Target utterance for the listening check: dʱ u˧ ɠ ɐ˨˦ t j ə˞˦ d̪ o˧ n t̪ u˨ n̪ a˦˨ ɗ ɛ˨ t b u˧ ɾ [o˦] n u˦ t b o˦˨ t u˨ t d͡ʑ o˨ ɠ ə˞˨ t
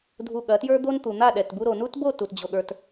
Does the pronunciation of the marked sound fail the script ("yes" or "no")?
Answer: yes